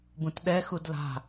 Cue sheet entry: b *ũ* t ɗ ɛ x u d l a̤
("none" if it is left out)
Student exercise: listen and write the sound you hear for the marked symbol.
ũ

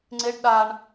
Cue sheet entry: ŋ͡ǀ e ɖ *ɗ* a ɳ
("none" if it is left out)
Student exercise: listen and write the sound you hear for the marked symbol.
ɗ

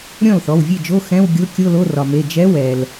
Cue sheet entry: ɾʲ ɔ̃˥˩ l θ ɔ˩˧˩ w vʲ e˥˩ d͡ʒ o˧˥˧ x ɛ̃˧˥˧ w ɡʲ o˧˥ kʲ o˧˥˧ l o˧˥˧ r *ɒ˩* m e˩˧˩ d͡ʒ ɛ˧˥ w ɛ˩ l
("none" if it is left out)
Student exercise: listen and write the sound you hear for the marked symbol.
ɒ˩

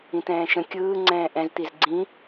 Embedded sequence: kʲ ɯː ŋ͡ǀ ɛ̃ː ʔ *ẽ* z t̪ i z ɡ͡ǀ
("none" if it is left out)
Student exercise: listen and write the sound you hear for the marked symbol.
ɛ̃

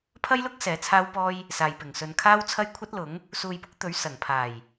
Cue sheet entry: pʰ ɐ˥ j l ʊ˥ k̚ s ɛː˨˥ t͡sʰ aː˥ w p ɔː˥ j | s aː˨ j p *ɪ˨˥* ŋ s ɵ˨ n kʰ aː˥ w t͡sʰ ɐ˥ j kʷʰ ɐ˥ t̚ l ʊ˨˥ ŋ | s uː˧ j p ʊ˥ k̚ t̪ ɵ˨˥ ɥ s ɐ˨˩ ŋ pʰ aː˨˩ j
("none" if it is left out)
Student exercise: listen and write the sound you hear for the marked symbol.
ɪ˨˩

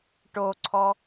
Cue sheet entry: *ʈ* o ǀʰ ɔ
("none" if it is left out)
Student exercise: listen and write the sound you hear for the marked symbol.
ʈ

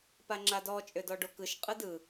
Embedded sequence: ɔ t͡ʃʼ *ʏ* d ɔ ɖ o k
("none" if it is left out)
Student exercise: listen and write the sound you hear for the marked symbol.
ʏ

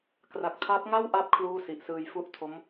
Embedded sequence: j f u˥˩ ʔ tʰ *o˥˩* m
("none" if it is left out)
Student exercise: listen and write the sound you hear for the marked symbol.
o˦˥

